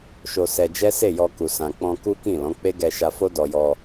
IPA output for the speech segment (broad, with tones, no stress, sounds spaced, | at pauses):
ʃ o˧ s ɛ˧ d͡ʒ ɛ˦ s e˦˨ j ɔ˧ k u˨ s ã˨ k͡p ɔ̃˧ k u˦ k ĩ˦˨ l ɔ̃˨˦ k͡p e˦ ɡ ɛ˧ ʃ a˧ f o˦ d ɔ˧ j ɔ˧